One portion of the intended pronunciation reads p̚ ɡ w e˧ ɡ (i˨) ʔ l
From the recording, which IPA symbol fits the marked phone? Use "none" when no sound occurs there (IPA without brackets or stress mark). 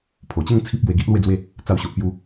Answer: i˦